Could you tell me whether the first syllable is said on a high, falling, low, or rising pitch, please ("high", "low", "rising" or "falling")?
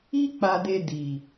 high